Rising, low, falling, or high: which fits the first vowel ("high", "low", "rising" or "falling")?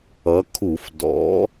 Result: rising